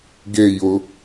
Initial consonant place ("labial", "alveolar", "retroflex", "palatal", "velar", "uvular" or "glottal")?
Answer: velar